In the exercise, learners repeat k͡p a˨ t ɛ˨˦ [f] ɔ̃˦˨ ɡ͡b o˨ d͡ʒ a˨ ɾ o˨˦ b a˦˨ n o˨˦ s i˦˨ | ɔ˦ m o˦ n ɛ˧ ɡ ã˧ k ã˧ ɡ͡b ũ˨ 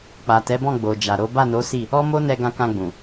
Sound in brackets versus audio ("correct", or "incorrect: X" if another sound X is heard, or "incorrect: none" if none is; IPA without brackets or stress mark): incorrect: b